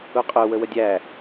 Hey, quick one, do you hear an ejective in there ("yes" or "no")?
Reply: yes